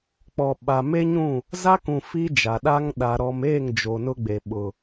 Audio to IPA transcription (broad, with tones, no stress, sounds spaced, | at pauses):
k͡p ɔ˨ ɓ a˨ m e˦ ɲ ũ˦˨ | z a˦ k ũ˨ f i˦ d͡ʒ a˨ ɗ a˦ ŋ ɗ a˨ ɾ ɔ˨ m eː˦˨ ŋ d͡ʒ o˨ n ʊ˦ ɡ͡b e˨ ɓ ʊ˨